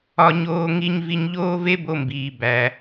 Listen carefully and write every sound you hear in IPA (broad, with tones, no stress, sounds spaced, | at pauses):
ɒ˧ ɲ oː˧ ŋ i˧ ɲ v i˧ ɲ ʎ oː˥ v e˥ b o˧ m b iː˩ b æ˩